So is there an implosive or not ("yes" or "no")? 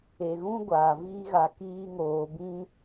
no